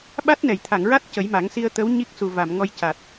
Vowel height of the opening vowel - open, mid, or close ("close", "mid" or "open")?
open